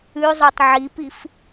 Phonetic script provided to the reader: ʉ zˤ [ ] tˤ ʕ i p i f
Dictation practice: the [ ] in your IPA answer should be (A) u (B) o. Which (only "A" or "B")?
B